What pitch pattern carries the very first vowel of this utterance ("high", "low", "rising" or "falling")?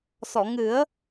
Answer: low